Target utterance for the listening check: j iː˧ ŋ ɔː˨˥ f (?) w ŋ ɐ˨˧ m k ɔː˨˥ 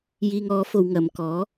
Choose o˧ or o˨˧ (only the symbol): o˨˧